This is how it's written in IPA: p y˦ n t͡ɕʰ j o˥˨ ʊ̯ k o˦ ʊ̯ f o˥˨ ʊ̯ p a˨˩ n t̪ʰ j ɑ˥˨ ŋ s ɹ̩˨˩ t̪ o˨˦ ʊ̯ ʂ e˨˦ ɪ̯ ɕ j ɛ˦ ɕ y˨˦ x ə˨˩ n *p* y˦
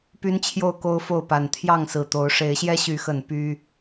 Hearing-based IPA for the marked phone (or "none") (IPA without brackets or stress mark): p